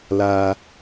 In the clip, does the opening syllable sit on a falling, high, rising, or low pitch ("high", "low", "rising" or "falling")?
low